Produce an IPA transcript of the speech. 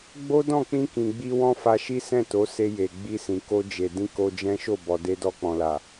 ɡ͡b o˦ d ɔ̃˦˨ k͡p ĩ˧ k ĩ˨ ɡ͡b i˧ w ɔ̃˦ f a˧ ʃ i˦ s ɛ̃˦˨ t o˨˦ s e˧ j e˨ ɡ͡b i˧ s ĩ˨ k o˧ d͡ʒ e˨ d ĩ˧ k o˧ d͡ʒ ɛ̃˦ ʃ o˦˨ b ɔ˨ d e˧ d ɔ˧ k͡p ɔ̃˨ l a˨

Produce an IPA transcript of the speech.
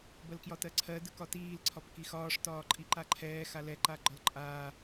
b ɜ l k j ɒ t ɜ ǀʰ ɜ d ɯ k ɒ t iː l ǀʰ ɒ p k i x ɒː ʂ t ɒː ǃʼ i ǃ a ǃʰ ɛː x a l ɛ ǃ a ɡ͡ǃ ɒ l ǃʼ aː

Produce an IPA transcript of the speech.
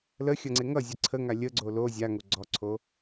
l ə xʲ ʌ ŋ͡ǀ e ŋ ʌ zʲ ə ǀʰ ə ŋ a lʲ ə ɡ͡ǀ o l o zʲ a ŋ o ɡ͡ǀ ɔ ǀʰ o

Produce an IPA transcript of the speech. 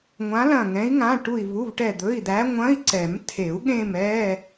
ŋʷ ã˧˥ l ɐ̃˦˨ ŋ ɛ̃˧˥ i̯ ŋ ã˧˥˧ ʈ u˦˨ i̯ v u˧˥˧ v ʈ ɛ˦˨ d̪ ɵ˧˥˧ i̯ d̪ æ˧˥ ŋʷ ɐ̃˧˥˧ i̯ ǀ ɛ˨˩˦ m tʰ e˨˩˦ u̯ ɠ ẽ˦˨ m ɛ˧˥˧

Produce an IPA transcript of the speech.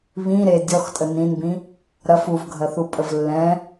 β ĩ ɾ e dʲ ɔ x tʼ ə n ĩ n b ĩ | ɾ ɐ f u v ɡʱ ɐ θ u pʼ ə v lː ɛ̃

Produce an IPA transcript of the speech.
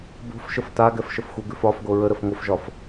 b o̤ f ʃ ə f t a ɡ ɛ f ʃ ə f xʷ ə ɡ ʉ f ɒ f ɡ o ɹ ə ɾ ə f ŋʷ ə f ʒ ɒ f

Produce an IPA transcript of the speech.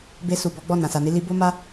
b e˧ s u˨ b ɔ˨˦ ɡ͡b ɔ˦˨ n ã˨ s a˨ n i˧ l i˧ b o˦ m a˦

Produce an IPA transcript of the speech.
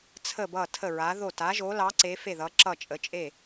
t͡sʰ ə˥˩ b ʌ˥˩ tʰ ə˥˩ ɹ a˨˥ ð o˥˩ t a˨˥ ʒ o˨˥ l ɑ˨˥ ǀ e˨˥ f e˥˩ ð ʌ˨˥ ǁ ʌ˥˩ t͡ʃʼ ə˨˥ t͡ʃʼ e˥˩

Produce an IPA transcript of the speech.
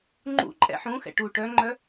ŋ͡ǃ ṵ ǃʼ ɛ̰ ħ ũ x ɛ̰ ʈ u ʈ œ ŋ͡ǃ œ

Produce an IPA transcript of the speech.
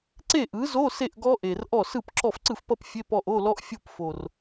ǀ e˥˩ ʔ ɯ˩˥ z o˧˥˧ s e˥˩ ʔ ɡ ɔ˦˥ ʔ e˨˩ r ʔ ɔ˥˩ s ɯ˥˩ p ǁ ɔ˥˩ f ǀ ɯ˥˩ f p ʌ˥˧ p fʲ e˧˥˧ p ɔ˥˩ ʔ o˧˥˧ l ɔ˦˥ ʔ fʲ o˥˩ p f o˨˩ r

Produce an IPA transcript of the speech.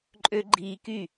ǃʼ ø˦ ɡ͡ǃ iː˧ k y˦˨

